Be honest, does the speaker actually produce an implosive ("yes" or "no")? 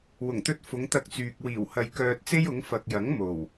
no